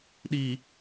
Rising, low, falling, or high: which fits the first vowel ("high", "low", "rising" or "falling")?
low